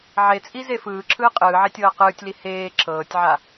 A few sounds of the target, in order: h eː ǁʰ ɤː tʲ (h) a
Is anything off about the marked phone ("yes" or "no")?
yes